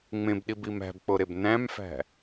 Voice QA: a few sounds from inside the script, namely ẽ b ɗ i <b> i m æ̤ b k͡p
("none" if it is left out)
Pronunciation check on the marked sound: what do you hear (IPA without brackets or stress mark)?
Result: b